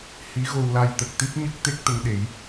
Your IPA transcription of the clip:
h i˧˥ ɣ o˧ w l a˧ j t̪ ə˨˩ k̚ t̪ i˦˥ p̚ ɲ ə˦˥ k̚ t̪ e˦˥ k̚ t̪ ə˧ ŋ ɗ e˨˩˦ j

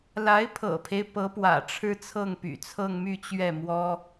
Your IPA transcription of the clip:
l a˧˥ ɪ̯ pʰ ɤ̰˨˩ pʰ e˦ ɪ̯ p ɤ˧˥ p w ä̰˨˩ ʈ͡ʂʰ ɻ̩˥ t͡sʰ ɤ˥˩ ŋ p y̰˨˩ t͡sʰ ɤ˥˧ ŋ m y˥˧ t͡ɕ ɥ ɛ˥˩ m w ɔ˥

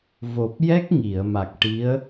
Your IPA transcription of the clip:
v o˨˩ p̚ j ɛ˦˥ k̚ ŋ i˨˩˨ ə̯ m a˨˩ k̚ ʈ i˧˥ ə̯

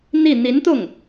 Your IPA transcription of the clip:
n̪ i˥˩ n̪ i˧˥ n t̪ ʊ˥˩ ŋ

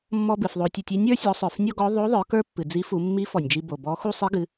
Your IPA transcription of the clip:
mː ɔ˧ b ɨ˩ f ðˤ o˧ tʲ u˧ tʲ i˧˥ nʲ ə˞˧˥ sʲ ɔ˩˧ sˤ ə˞˩ f nʲ ɔ˥ ɡ ɔ˧˥ ðˤ o˧˥ ðˤ ə˞˩˧ k ə˞˥ pː ɨ˩ d͡z i˧˥ f u˩˧ mː i˧˥ f ɔ˩ nʲ d͡ʒ i˧ b o˩ b ɔ˧˥ x u˥ sˤ i˧˥ ɡ ɨ˩˧

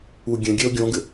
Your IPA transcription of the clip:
u ɡʲ ɛ̃ ɡʲ ɛ o̯ ɡʲ ɔ̃ ɡ ɘ

